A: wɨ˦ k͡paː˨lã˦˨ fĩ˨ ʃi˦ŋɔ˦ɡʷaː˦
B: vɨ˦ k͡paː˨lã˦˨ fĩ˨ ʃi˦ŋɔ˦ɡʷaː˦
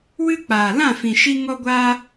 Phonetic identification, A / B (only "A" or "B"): A